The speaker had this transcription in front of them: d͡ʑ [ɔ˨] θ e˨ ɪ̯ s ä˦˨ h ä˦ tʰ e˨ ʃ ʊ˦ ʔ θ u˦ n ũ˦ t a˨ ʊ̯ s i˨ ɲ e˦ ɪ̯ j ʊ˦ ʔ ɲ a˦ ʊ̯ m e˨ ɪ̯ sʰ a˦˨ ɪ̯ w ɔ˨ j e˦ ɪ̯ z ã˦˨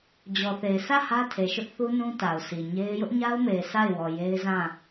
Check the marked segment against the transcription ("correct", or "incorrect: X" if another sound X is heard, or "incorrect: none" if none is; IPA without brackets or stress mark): correct